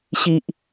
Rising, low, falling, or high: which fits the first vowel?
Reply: high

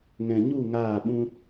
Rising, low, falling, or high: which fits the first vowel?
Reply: low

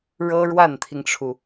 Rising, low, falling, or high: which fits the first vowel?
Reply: high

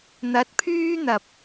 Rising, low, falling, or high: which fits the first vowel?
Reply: rising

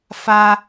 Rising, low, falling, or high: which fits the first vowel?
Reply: high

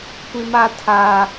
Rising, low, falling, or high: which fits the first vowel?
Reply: high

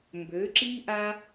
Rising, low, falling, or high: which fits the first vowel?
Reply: rising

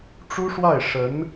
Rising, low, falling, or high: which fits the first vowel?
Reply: high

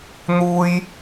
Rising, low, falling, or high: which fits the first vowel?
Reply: high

